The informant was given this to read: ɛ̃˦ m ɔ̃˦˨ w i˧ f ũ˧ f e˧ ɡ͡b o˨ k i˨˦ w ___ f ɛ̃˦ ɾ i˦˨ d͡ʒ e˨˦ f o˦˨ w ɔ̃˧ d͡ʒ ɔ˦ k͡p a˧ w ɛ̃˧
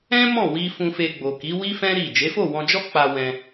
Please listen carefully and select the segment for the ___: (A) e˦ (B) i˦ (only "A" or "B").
B